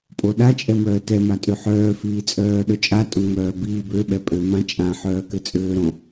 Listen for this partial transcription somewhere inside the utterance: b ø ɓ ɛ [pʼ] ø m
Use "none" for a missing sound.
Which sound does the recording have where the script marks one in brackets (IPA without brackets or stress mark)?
pʼ